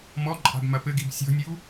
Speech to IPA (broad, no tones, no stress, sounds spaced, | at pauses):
m ɔ ǃʼ a̤ b m ɐ p ɘ ɡ i b sʲ ɔ̤ nʲ u